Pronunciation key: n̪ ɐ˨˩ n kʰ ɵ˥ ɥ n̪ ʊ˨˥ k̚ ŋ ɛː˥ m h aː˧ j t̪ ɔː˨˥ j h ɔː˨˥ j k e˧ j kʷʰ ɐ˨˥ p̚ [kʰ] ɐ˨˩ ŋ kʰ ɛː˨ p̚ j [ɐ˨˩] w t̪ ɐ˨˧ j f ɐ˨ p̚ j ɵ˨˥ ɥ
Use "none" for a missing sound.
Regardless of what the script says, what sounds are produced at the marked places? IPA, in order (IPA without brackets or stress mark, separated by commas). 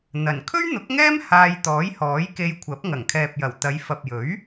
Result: ŋ, ɐ˨˩